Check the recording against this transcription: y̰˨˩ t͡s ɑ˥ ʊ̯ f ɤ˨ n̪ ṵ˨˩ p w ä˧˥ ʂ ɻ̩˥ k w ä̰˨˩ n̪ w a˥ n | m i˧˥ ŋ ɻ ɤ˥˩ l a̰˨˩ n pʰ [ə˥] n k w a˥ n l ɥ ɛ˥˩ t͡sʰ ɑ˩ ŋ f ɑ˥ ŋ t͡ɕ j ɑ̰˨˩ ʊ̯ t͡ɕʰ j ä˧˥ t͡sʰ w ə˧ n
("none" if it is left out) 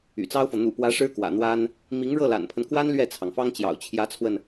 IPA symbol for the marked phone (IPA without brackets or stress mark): ə˦